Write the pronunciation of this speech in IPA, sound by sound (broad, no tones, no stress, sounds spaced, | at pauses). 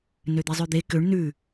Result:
n ø d̪ i zˤ ʉ d̪ e k ø ɳ n ʉ